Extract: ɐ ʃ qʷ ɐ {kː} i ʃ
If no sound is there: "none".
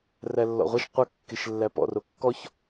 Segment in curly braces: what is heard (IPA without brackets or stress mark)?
kː